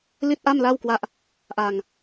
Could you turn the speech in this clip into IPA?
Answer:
li˥˩t̚ʔa˥˩mla˥˩wkwa˦˥ʔ | ʔa˧ŋ

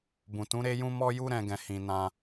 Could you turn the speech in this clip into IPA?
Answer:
bũ˨tũ˨˦ ɾe˦jũ˦ mɔ˦ju˦ ɾɛ̃˧ɡɛ̃˨ hĩ˨nã˧

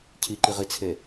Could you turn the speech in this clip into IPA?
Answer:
cʰiǃiʁit͡sʰe

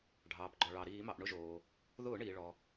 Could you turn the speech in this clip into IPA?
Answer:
ɖʱɑː˩pɡ͡ǃɔ˩ɭɑ˩ ɾiː˧˩˧mɑ˩ʔɳʊ˧ʒoː˩ | ðʊː˧˩˧ɳiː˩ ɭɔ˩

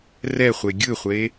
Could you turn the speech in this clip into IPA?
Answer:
rɛ χʷeɡʲɯχʷe

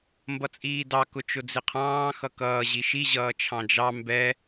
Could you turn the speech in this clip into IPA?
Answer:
mbʌt͡sʼiːdɑ kʊt͡ʃʊd͡zɪqʰɑ̃ː xʌkʌː ʑiʃi ʑʌːt͡ʃʰɑ̃d͡ʒɑ mbɛ

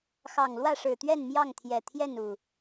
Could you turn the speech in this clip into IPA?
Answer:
xɑ˨˩ŋ lwä˥˨ʂɻ̩˨˩t̪ɥɛ˥˨n mjɑ˥˨ŋt̪ʰjɛ˨˩t̪ʰjɛ˥˨nu˨˩

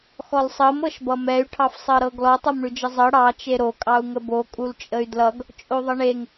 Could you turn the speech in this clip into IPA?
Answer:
xɔlsˤɤm ɤʃbʌmɛy̯ ʈʰɑfsˤɤɾɤɡlɔ tˤɤmɳʉd͡ʒəzˤɤ ɽɑ t͡ʃeɾo kʼɑu̯ŋəbo kʼult͡ʃʼəy̯dlʌɡ | t͡ʃʼoðˤəɳeŋ

